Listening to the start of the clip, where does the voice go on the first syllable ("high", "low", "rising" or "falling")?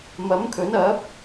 rising